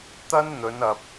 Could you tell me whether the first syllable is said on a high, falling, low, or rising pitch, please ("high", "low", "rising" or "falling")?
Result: high